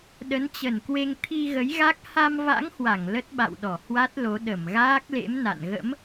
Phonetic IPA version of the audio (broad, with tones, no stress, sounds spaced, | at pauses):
ɗ ə˨˦ n t͡ɕ ə˧˩ n k w e˧ ŋ t̪ʰ i˧ ɣ ə˨˦ j ɣ a˦˥ k̚ h a˧ m v a̰˧˥ ŋ h w a˧˩ ŋ l ə˦˥ t̚ ɓ a̰˧˨ w ɗ ɔ˧˩ h w a˦˥ t̚ l o˨˦ ɗ ə˧˩ m ɣ aː˦˥ k̚ l ḛ˧˥ m n a̰˧˨ n ɣ ə̰˧˥ m